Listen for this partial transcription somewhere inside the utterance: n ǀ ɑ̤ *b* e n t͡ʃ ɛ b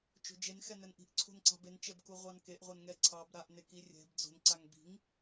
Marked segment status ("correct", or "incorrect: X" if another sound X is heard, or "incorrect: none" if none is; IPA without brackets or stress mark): correct